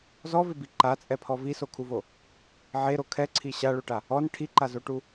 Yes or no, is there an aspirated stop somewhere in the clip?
yes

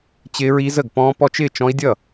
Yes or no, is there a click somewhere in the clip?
no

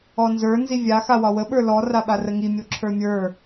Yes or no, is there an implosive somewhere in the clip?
yes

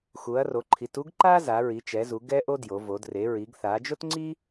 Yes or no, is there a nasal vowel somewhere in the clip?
no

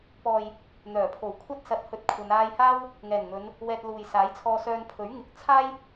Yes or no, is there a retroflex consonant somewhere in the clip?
no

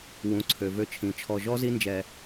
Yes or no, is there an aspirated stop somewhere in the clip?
yes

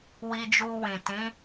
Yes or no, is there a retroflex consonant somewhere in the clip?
no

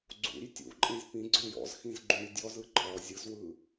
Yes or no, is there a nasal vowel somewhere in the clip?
yes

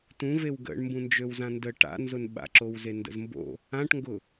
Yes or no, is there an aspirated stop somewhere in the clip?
no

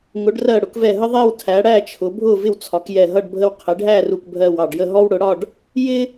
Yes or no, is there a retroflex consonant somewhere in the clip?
yes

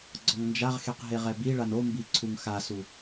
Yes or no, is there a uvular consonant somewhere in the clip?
yes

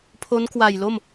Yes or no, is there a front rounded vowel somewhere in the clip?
no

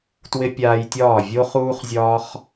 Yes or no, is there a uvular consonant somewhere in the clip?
yes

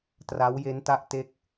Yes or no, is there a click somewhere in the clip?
no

